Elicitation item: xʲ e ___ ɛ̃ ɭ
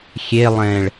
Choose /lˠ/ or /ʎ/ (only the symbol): lˠ